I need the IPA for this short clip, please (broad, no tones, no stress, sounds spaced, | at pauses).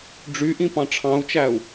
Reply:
ɖ͡ʐ y ʔ ĩ p ɑ̃ ʈ͡ʂʰ ɑ̃ u̯ t͡ʃ æ u̯